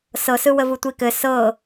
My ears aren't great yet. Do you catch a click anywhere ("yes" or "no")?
no